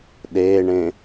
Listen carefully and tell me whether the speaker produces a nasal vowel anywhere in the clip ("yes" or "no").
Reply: yes